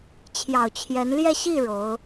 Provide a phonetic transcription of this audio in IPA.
t͡ɕʰ j ɑ˨˩ ʊ̯ t͡ɕʰ j ɛ˧˥ n l j ɛ˥˧ ɕ i˥˩ ɻ o˧˥ ʊ̯

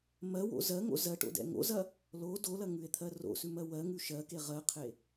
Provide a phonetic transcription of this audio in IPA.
m ɜ w o̰ z ɜ ŋ o̰ z ɜ ʈ o̰ d ɛ̰ ŋ o̰ z ɐ | l o d o l ɐ ŋ ʉ e̯ t̪ʰ ɜ r o̰ s ʉ m ɜ w ɜ ŋ ʉ ʃ ɜ k e ʁ ɜ qʰ e

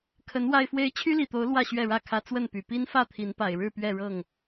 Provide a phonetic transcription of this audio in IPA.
kʰ ə˨˦ n w a˨˩ ɪ̯ f w e˨˦ ɪ̯ t͡ɕʰ y˦ l i˨˩ t̪ o˨˦ ʊ̯ l w ä˥˨ ɕ ɥ ɛ˥˨ ɻ ä˥˨ kʰ ä˦ t͡s w ə˥˨ n p y˨˩ p i˦ n f ä˥˨ t̪ʰ i˨˦ n p a˨˩ ɪ̯ ɻ ɻ̩˥˨ p ɥ ɛ˥˨ ɻ ɤ˥˨ ŋ

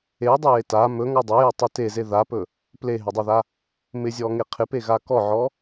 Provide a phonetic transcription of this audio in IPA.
e dˤ ɵ j e t a m ɵ ŋ ɔ dˤ e j ɔ tˤ ɵ t e z e ð a p ɵ | p l e ɦ ɪ dˤ a ð a | m ɪ zʲ ɔ ŋ e qʰ ɪ p e ɣ a k ɔ ʕ ɔ

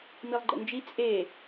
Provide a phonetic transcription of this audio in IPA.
m i lˠ ɡ͡ǃ ə̰ n d͡ʒ i t͡sʼ e

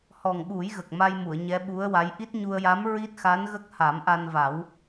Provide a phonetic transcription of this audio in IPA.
h ɔ˨˩ ŋ ɓ u˨˩˦ j ɣ ə˨˩ k̚ m a˧ j m u˨˩˨ ə̯ ɲ ɛ˧˥ ɓ u˧˥ ə̯ w a˧˥ j ʔ i˦˥ t̚ ɲ u˧ ə̯ j a˧˥ m ɹ i˦˥ t̚ x a˧˥ n ɣ ə˦˥ k̚ h a˨˩˦ m ʔ a˧ n v a˨˩˦ w

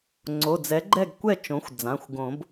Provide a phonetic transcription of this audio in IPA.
ŋ͡ǀ o˩˧˩ d͡z ɛ˩˥ ɡ͡ǃ ɛ˥˩ ɡ kʷ ɛ˥˩ t͡ʃ õ˩˥ xʷ d͡z ã˩˧˩ xʷ ɡ õ˨˩˦ b

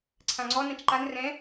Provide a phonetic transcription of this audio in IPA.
ǀʰ ã ŋ͡ǀ ɔ n ã t͡ʃ ǃ a n r ɛ̃

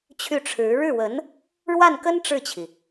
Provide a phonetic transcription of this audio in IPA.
t͡ɕʰ y˥˩ ʈ͡ʂʰ ɻ̩˧˥ ɻ ɻ̩˥˩ w ə˧˥ n | ɻ w a˥˩ n k ə˥ n ʈ͡ʂ ɻ̩˥˩ t͡ɕʰ i˩

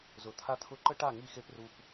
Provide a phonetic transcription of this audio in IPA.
z ʊ˨ t̪ʰ a˧ t̪ʰ ʊ˧ ǃ ə˦ ʈ a˦˨ ŋ i˦˨ x e˦ p r u˧ p

